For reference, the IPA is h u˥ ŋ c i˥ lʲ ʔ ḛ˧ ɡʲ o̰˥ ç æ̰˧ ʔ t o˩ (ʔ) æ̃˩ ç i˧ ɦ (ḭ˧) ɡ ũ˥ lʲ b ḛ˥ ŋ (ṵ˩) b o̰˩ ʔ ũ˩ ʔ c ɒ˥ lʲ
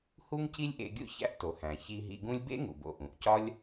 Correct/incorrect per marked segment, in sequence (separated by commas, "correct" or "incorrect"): incorrect, correct, correct